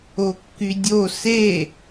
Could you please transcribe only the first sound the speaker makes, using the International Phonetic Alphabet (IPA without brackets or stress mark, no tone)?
o